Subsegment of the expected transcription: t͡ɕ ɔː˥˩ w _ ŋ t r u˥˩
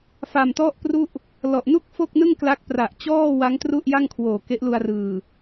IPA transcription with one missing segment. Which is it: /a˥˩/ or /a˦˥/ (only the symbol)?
a˦˥